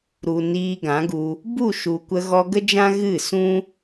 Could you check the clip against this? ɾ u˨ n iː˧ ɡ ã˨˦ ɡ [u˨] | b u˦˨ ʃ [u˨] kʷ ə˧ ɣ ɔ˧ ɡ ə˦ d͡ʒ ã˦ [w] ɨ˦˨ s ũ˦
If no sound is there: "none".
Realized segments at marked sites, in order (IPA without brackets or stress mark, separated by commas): u˧, u˨, ɣ